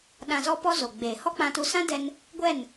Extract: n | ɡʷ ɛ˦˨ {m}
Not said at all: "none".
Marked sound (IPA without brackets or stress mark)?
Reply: n